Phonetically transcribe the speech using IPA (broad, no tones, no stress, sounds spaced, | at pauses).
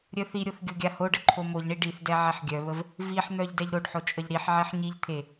ɾʲ œ θ i ɾʲ o θ ɡʲ o ɡʲ a h o ɖ ə ǃʰ o m o ʎ ɳ i ɖ i θ d ɛ ʕ ɛ ħ ɡʲ œ β ə v | v i ħ n̪ œ ʎ d ɛ ʎ ɾ o ɖ ħ o t͡ʃʼ ə ʎ ɾ i ħ ʕ e ħ ɲ i ʎ t̪ʰ e